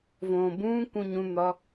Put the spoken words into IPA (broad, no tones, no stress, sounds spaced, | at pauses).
v õː b ũː k ũ ɲ ũ n̪ ɒ